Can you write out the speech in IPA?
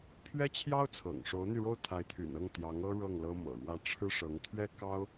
pʰ ɥ ɛ˥ t͡ɕʰ j ɑ˥ ʊ̯ t͡sʰ ɤ̰˨˩ ŋ ʂ o˧˥ ʊ̯ n̪ y˧ ɻ o˥˩ ʊ̯ t̪ʰ a˧˥ ɪ̯ t̪ʰ y̰˨˩ n ɤ˥˩ ŋ t̪ j ɑ˧˥ ŋ ɤ˥ ɻ ɤ˥˩ ŋ l ɤ˥ m ɤ̰˨˩ ɻ w ä˥˩ ʈ͡ʂʰ ɻ̩˥ ʂ ɤ˧˥ ŋ t̪ʰ ɥ ɛ˥ k ɑ˥ ʊ̯

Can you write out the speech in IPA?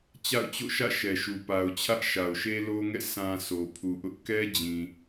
t͡ɕ a̰˦˨ ʊ̯ t͡ɕ o̰˦˨ ʃ ä̰˦˨ ʃ ɛ˨ ʃ u˨ p a˨ ʊ̯ t͡ɕʰ ä˦ ʔ ʃ a˨ ʊ̯ ʃ e˦ l o˦ ŋ ɛ̰˦˨ sʰ ã˨ sʰ o˨ pʰ u˨ ʔ ʊ˦ ʔ k ɛ˦ d͡ʑ ĩ˨

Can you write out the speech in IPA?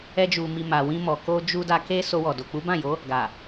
ɛ˧ d͡ʒ u˨ m i˨ m a˨ w ĩ˧ m ɔ˨ k o˧ d͡ʒ u˧ d a˧ k e˧ s o˧ w ɔ˨ d o˨ k͡p u˨˦ b ã˦˨ j o˨˦ | ɡ a˨

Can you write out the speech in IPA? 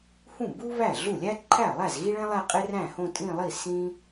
h ũ˥˩ b u˥ β æ˥˩ ɮ u˥˩ lʲ æ˥ ǃʰ æ˥˩ lˠ æ˥˩ z ɣ i˥ ɭ ẽ˥ lˠ æ˥˧ qʼ e˥ r æ̃˥˩ h õ˥˧ tʼ ĩ˥˧ lˠ i˥˩ s ĩ˥

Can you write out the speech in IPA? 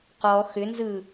q ɔ x ʏ n z ɯ

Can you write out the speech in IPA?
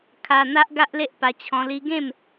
kʰ a˧ n̪ a˦ ʔ ɡ a˦ ʔ l e˦ ʔ p a˧ t͡ɕʰ ɔ̃˧ l i˧ ɡ ẽ˥˧ m

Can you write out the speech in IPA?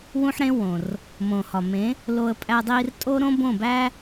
w ũ˦ ħ ɾ ẽ˦ w õ˨ r | m õ˨ h ɒ˨ m ẽ˨˦ | l o˧ ə̯ pʼ æ˧ dˤ iː˧ r tʼ o˦ ɾ õ˦ b õ˦˨ b æ˦

